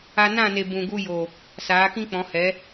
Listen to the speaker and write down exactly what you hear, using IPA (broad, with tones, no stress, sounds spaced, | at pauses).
a˧ n ã˦˨ n e˨ b ũ˨ ɡ u˧ j o˨ | s aː˨˦ k ĩ˦ k͡p ɔ̃˨˦ h ɛ˨˦